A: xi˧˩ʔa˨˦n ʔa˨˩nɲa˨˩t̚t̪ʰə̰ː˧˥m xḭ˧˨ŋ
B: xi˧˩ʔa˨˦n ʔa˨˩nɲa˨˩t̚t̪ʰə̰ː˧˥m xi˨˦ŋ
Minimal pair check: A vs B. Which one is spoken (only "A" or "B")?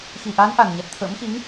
B